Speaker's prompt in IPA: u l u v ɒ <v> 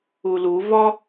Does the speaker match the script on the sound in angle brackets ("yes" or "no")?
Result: no